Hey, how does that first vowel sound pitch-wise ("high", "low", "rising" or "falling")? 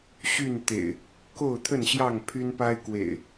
falling